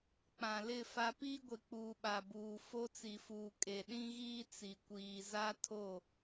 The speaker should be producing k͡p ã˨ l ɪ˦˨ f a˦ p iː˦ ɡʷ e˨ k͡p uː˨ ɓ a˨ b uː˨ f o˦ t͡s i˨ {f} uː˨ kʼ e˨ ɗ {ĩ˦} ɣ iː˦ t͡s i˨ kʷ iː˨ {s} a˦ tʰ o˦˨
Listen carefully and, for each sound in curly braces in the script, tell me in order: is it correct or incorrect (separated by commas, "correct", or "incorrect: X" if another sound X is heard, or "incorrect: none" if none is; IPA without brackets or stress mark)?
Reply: correct, correct, incorrect: z